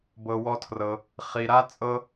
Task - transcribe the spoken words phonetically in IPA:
b ɤ˩ w ɔ˧ tʰ r ɤ˩ | χ i˩ ɾ a˥ t͡sʼ ɤ˥

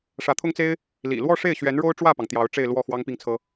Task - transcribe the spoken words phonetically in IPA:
ʂ ä˧˥ t̪ʰ ʊ˥ ŋ t͡s e˥ ɪ̯ | l ḭ˨˩ l w ɔ˥˧ ʂ e˥˩ ɪ̯ ɕ ɥ ɛ˧˥ n ɻ o˥ ʊ̯ ʈ͡ʂ w ä˥˩ p ɑ˩ ŋ t̪ j ɑ˧˥ ʊ̯ ʈ͡ʂ e˥˧ ɪ̯ l w ɔ˥˩ x w ɑ˥ ŋ p i˥˩ ŋ t͡sʰ ɤ˥

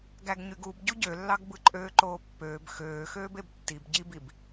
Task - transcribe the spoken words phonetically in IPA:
ɡ æ ɡ ɲ y ɡ u b ɟ u ɟ ø lː ɑ ɡ b ɯ ǃʼ øː ǃ oː pː øː b x øː x øː b e b tː i b ɟ i b i b

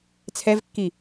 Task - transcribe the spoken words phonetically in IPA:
t͡sʰ ɛ v kː i

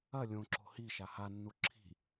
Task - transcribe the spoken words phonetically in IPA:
ɐ lʲ õ ǁ o̤ h i ʃ a h a nː u ǁʰ i̤

